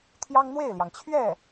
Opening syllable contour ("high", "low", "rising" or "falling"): high